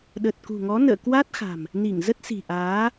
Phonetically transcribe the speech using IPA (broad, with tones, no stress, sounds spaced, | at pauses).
ɗ ə˨˩ t̚ k ṳ˨˩ ŋ ɔ˨˦ n ə̰ː˧˨ k w a˦˥ t̚ x a̤˨˩ m | n i˧˩ ŋ z ə˦˥ t̚ s i̤˨˩ ʔ aː˨˦